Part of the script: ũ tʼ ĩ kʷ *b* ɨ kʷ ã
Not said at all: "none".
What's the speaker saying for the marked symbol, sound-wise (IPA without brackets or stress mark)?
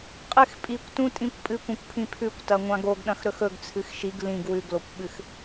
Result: pʼ